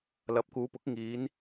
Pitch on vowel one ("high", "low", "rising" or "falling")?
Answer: rising